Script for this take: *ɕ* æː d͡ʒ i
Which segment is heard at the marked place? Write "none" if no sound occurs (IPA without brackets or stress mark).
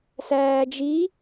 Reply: s